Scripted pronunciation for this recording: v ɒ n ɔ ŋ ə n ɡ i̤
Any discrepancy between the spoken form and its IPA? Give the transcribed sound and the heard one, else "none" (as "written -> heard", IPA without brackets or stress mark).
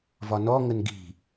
none